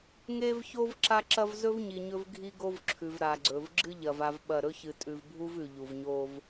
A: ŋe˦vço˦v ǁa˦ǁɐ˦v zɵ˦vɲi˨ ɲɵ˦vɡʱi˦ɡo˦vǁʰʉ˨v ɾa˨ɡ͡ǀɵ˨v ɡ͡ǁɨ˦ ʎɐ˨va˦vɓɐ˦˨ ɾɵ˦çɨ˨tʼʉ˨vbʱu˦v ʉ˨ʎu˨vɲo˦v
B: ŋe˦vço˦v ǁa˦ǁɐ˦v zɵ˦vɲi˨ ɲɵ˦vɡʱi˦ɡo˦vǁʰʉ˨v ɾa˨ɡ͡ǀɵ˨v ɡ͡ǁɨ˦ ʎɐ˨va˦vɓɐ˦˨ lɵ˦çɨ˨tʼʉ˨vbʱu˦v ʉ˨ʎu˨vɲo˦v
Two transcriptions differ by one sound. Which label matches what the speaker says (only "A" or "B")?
A